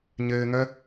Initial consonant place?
palatal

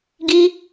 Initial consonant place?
velar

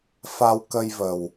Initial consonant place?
labial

